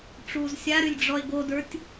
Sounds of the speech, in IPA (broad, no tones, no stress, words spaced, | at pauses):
ʈ͡ʂuːzsʲaɾylʲ ɖ͡ʐɔe̯ɡodə˞tʲ